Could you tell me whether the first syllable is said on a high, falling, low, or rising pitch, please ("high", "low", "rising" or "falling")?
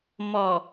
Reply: low